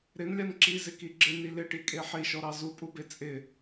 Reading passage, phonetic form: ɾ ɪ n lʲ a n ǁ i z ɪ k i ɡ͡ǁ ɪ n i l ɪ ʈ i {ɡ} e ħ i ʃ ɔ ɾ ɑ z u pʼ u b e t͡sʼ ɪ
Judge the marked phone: incorrect: kʼ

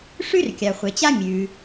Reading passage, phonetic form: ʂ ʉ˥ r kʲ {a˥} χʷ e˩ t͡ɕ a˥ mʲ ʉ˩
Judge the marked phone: incorrect: a˩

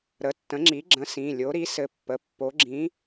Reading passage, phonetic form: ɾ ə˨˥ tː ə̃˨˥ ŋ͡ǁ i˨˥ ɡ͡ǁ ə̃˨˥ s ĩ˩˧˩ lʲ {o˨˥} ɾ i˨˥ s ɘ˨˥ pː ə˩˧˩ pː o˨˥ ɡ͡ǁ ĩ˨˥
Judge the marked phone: correct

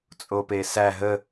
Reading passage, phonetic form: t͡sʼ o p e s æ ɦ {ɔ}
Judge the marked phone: incorrect: ə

